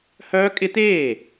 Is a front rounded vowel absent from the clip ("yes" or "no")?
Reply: no